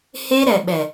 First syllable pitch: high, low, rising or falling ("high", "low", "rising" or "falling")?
high